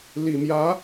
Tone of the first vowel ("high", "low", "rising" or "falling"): low